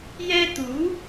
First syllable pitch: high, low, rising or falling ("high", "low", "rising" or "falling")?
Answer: high